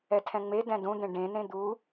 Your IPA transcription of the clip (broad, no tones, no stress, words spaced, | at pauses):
ɛtʰɛ̃ŋ͡medɛ̃ dũd̪ẽ ɖẽnẽ d̪u